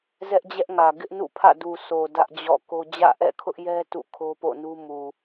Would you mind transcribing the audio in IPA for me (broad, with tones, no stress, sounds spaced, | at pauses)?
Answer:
z ɛ˦ ʔ d͡ʑ ɛ˦ ʔ ŋ ä˨ ɡ ɪ˦ ʔ n ṵ˦˨ pʰ ä̰˦˨ d u˨ s o˨ d ä˦ ʔ d͡ʑ ɔ̰˦˨ k o˦ d͡ʑ ä̰˦˨ ʔ ɛ̰˦˨ kʰ ʊ˦ ʔ j ɛ˦ t ṵ˦˨ kʰ o˦ p o̰˦˨ n u˦ m u˨